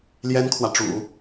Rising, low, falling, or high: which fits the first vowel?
high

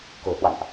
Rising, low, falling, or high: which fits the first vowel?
low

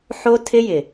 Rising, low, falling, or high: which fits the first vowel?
high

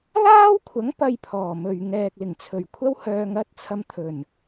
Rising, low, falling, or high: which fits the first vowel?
high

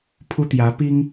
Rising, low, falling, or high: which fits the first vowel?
high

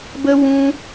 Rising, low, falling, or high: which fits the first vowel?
high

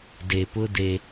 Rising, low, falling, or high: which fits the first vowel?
low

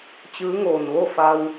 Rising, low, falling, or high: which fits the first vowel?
rising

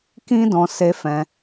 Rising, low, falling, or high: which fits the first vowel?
high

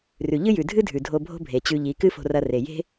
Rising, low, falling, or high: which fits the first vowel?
low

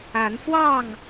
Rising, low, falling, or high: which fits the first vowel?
rising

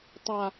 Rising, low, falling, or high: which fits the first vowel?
low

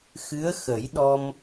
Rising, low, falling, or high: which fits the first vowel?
rising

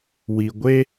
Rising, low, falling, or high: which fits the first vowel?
low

